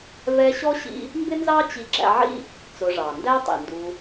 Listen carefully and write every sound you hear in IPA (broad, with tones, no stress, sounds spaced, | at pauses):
v ɛ˦ ɕ ɔ˥ ɕ ḭ˦ | m b ɪ˥ n z ɑ˥ t͡ɕ i˦ ɡ͡ǁ æ̰˦ ʕ ḭ˥ | t͡s ʊ˨ ʐ ɑ˩ n d æ˦ tˤ ḭ˩ n d u˨